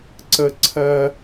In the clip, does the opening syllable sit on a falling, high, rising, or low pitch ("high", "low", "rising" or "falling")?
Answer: high